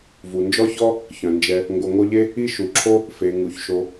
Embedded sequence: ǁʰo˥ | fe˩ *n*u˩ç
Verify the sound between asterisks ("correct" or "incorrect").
incorrect